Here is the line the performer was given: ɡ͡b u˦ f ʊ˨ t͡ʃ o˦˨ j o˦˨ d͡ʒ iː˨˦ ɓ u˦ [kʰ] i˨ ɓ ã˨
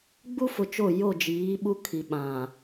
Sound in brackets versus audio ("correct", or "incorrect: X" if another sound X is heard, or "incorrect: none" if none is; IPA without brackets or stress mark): correct